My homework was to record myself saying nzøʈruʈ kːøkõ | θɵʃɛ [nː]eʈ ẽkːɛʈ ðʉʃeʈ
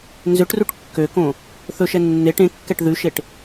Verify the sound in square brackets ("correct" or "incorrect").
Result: correct